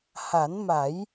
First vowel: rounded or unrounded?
unrounded